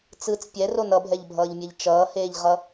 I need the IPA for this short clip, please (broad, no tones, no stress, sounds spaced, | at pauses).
t͡s ɯ t͡s pʲ ɛ r o n ʌ bʱ ɛ ʎ bʱ ʌː ʎ mʲ ɛ ʎ t͡ʃ ʌː h eː ʎ ʁ ʌ